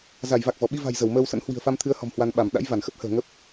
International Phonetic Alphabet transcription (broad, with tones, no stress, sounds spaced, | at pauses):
z a˧˩ j v a˨˩ k̚ v ɔ˧˩ ɓ i˧ v a̤˨˩ j z ə˧˩ w m əː˧ w s ə̰˧˥ n h w i̤˨˩ ə̯ f a˧ m t̪ʰ ɨ˨˦ ə̯ h ɔ̤˨˩ m h w a˧ n ɓ a˧˩ m ɗ a̰˧˥ j v a˧˩ n x ə˦˥ p̚ h ə̤ː˨˩ ŋ ə˦˥ p̚